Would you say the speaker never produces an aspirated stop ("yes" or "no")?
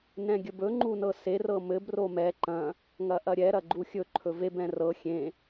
no